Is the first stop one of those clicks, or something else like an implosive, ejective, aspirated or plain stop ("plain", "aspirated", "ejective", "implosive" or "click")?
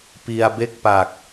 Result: plain